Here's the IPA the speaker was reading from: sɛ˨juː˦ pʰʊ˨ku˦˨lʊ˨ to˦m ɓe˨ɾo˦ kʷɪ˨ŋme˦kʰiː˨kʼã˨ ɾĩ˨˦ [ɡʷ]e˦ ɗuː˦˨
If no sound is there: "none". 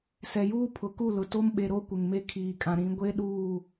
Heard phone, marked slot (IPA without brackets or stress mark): ɡʷ